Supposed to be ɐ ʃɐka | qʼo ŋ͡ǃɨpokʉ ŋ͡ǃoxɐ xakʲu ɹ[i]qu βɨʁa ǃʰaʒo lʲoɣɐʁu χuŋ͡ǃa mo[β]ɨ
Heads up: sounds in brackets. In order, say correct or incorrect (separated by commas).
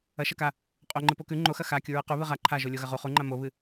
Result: incorrect, correct